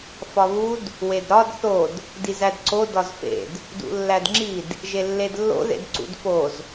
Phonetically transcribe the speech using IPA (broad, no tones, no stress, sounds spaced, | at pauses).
f ɒ β u d | w e d ɾ ɒ d θ o d | d i z æ d ǀ o d ɒ z f ḛ d | d ṵ lː æ d ŋ͡ǁ i d | ʒ e lː e d lː o̰ ð ḛ d ǀ ṵ d f o z